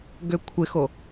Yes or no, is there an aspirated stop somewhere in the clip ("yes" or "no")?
yes